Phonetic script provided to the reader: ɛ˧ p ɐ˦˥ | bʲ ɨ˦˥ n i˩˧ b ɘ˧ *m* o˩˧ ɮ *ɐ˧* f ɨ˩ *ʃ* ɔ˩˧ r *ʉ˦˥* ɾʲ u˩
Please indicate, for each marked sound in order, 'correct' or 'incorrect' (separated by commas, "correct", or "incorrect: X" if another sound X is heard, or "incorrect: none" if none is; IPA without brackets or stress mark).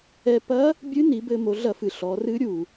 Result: correct, incorrect: ɐ˧˩˧, incorrect: ɬ, incorrect: ɨ˦˥